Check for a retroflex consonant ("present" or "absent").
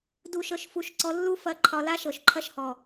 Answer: absent